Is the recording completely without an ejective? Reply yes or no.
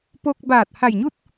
yes